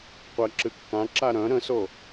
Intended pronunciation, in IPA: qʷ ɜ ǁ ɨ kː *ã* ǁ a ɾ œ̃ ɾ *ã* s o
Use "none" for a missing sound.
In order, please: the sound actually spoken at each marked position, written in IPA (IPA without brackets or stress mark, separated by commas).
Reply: ã, ə̃